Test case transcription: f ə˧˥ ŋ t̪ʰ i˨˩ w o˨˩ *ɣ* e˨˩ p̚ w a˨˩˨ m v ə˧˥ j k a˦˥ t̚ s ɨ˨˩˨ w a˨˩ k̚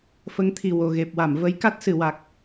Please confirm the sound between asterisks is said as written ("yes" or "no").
yes